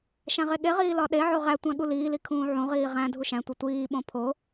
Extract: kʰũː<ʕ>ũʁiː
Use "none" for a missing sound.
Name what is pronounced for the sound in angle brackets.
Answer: ʕ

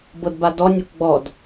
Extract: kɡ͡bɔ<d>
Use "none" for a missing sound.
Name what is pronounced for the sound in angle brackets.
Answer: d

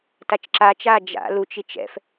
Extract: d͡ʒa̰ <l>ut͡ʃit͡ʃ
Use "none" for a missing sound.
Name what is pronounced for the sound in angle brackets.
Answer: l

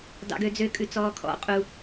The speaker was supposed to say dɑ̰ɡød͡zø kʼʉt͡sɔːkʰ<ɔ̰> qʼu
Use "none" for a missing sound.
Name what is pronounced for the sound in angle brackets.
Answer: ɔ̰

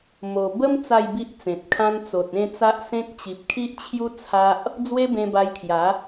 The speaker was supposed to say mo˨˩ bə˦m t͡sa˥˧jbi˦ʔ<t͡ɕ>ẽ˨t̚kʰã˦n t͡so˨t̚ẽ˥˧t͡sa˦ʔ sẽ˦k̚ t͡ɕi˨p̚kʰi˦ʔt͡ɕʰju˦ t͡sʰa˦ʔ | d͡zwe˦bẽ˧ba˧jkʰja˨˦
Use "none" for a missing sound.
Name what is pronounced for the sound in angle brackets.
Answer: t͡s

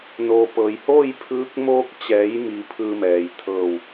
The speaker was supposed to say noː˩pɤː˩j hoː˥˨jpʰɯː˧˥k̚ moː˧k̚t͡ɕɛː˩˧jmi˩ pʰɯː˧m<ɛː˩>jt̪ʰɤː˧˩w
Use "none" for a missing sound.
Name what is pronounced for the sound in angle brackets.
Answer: ɛː˩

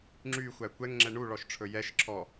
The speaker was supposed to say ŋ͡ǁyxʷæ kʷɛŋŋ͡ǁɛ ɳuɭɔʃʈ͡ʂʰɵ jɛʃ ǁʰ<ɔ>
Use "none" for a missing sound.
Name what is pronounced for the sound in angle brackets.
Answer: ɔ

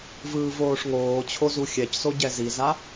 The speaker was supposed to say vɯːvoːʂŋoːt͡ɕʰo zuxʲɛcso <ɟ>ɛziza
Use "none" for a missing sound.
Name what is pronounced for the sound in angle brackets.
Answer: ɟ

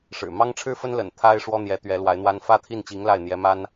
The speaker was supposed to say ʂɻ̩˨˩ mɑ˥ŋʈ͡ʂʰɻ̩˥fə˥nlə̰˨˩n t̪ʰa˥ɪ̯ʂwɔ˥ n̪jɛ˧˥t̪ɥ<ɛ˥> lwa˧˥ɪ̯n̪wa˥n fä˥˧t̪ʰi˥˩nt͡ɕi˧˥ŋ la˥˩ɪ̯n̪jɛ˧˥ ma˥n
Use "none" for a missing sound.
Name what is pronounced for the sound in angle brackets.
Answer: ɛ˧˥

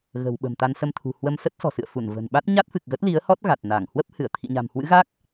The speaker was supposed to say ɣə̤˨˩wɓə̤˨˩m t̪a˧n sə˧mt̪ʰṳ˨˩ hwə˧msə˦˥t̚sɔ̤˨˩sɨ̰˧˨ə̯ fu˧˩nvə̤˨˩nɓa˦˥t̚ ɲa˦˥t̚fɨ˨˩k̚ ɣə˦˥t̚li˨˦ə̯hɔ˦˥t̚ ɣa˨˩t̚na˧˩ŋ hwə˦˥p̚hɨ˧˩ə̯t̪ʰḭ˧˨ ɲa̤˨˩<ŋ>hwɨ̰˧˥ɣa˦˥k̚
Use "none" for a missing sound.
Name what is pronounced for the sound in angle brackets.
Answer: m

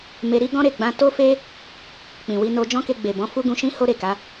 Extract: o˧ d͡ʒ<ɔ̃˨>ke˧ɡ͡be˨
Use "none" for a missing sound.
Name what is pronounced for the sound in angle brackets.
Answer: ɔ̃˦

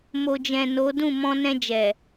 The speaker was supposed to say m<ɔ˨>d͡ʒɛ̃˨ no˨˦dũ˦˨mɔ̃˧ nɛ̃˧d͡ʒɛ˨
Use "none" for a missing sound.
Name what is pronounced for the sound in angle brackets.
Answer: o˨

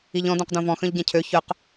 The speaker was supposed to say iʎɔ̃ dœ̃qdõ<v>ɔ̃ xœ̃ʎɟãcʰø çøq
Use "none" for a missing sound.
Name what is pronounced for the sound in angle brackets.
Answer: v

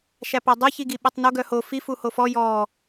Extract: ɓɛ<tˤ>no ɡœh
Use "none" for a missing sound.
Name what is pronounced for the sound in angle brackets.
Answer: tˤ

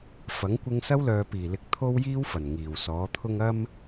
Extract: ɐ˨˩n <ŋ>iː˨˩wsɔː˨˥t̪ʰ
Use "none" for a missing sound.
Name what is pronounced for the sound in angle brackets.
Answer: ŋ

